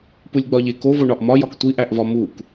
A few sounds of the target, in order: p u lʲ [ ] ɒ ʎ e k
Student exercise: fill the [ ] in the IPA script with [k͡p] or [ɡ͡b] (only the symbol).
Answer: ɡ͡b